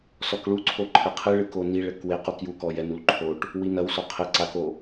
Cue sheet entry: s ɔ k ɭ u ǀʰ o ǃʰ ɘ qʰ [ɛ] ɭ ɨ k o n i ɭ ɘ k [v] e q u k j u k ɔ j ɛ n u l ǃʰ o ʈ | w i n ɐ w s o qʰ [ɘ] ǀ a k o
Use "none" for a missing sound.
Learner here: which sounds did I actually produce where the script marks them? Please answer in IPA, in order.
ɨ, w, ɘ

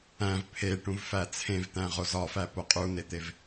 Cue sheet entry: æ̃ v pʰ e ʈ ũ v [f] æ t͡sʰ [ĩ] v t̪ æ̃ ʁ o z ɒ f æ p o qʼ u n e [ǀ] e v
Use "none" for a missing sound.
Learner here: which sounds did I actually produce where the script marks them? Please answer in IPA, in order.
f, ẽ, t̪

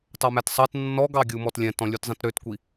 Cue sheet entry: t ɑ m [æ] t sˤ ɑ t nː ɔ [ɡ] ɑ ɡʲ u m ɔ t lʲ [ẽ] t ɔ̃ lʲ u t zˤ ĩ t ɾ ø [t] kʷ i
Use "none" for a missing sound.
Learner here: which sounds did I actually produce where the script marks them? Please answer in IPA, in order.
æ, ɡ, ɛ̃, t

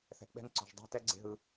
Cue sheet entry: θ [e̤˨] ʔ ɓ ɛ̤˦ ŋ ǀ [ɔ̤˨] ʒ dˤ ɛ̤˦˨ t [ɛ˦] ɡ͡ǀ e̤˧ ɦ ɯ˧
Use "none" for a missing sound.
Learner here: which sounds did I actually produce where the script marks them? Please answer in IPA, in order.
ɛ̤˨, ɔ̤˨, ɛ˦

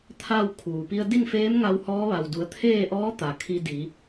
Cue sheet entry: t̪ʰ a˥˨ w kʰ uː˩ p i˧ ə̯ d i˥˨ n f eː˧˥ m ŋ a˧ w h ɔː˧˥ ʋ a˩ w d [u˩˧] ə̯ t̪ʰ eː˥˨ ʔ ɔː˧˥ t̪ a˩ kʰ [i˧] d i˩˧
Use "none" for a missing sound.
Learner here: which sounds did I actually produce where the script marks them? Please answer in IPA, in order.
u˩˧, i˧

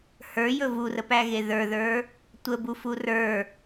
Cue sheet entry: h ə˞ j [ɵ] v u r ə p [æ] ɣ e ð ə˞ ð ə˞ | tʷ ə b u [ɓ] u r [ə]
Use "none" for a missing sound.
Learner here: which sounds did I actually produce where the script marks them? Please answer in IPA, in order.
ɵ, æ, f, ə˞

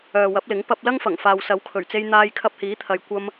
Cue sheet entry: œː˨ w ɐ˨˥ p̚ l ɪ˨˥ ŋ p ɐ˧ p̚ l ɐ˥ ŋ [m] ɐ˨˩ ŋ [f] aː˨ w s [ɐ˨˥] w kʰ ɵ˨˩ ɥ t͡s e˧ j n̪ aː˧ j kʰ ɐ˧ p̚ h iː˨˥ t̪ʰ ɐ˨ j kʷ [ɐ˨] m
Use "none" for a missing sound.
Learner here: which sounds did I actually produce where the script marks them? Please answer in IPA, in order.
f, f, ɐ˨˥, ɐ˧

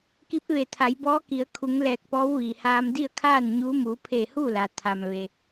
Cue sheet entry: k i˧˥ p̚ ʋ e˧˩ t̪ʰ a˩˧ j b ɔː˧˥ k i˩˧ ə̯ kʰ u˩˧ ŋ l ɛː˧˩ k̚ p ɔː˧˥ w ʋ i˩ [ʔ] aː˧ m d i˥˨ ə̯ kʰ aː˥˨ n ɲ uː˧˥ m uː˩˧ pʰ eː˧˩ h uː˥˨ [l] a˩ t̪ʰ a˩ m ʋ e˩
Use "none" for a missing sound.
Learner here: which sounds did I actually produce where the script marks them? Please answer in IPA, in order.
h, l

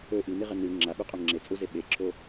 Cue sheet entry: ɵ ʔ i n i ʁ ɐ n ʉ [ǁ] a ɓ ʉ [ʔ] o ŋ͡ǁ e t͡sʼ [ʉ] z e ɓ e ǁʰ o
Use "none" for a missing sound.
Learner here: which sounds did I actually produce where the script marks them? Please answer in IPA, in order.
ŋ͡ǁ, qʼ, u

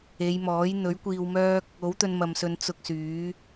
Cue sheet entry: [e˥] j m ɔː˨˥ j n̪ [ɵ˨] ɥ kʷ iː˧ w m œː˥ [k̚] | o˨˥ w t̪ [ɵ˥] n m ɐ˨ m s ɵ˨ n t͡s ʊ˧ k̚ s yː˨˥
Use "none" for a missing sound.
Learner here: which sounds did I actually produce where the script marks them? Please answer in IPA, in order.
e˨˧, ɵ˨˥, k̚, ɵ˧

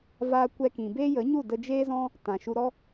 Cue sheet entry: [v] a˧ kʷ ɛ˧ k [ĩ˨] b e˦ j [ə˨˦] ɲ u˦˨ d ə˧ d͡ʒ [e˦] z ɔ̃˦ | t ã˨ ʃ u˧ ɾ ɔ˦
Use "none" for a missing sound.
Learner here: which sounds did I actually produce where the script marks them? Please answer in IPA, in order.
v, ĩ˨, ə˨˦, eː˦

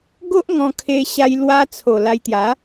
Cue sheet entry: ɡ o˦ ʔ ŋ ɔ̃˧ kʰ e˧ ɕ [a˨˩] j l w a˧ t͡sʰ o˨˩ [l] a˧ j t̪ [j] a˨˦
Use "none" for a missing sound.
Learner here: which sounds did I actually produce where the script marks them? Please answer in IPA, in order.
a˧, l, j

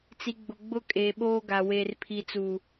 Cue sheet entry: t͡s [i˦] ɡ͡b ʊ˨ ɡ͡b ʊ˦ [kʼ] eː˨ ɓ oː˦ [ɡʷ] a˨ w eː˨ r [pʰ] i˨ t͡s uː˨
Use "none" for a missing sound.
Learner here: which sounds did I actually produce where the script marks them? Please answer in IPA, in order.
i˨, kʼ, ɡ, pʰ

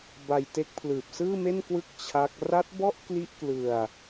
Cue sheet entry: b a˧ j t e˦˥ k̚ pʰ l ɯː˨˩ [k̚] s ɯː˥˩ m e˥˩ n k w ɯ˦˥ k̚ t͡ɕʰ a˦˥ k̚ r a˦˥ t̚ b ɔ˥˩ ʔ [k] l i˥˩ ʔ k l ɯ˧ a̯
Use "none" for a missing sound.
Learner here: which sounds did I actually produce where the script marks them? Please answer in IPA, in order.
p̚, k

